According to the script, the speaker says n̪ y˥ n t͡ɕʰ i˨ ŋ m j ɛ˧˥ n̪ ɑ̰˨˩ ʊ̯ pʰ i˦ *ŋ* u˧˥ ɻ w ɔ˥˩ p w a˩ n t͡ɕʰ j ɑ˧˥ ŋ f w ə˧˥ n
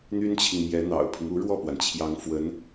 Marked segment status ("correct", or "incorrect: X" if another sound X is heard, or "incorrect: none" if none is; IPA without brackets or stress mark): correct